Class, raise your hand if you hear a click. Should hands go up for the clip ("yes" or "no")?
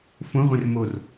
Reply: no